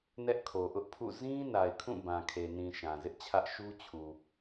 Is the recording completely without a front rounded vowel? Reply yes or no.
yes